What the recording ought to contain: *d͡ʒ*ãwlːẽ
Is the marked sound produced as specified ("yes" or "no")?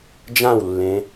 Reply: yes